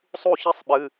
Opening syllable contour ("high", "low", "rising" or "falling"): falling